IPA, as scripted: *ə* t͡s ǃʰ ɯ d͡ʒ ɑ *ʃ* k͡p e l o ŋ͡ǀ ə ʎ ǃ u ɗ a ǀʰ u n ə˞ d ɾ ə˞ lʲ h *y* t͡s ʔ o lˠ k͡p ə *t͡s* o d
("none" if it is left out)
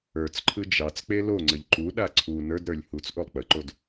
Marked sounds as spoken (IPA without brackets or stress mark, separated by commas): ə˞, t͡s, u, ǃ